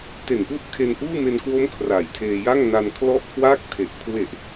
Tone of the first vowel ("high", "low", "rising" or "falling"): low